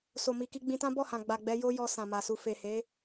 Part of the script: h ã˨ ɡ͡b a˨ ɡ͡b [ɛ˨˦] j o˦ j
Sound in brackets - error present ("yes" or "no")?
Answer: no